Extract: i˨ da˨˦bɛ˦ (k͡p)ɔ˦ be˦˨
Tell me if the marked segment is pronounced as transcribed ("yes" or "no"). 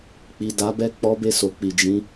yes